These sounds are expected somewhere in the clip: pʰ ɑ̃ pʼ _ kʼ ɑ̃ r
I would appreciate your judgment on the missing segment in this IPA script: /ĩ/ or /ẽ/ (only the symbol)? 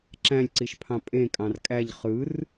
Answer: ẽ